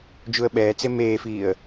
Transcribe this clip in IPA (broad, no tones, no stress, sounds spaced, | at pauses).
d͡ʒ u ə̯ ɓ ɛː t͡s e m eː f iː ə̯